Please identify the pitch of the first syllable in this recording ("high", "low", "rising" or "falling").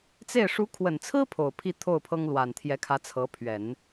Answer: falling